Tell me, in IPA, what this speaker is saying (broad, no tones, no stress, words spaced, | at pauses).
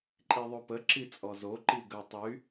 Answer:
ǃʼiðˤopə ǁit͡sʼɔzo ǃiɡə tˤy